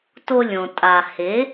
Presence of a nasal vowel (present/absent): present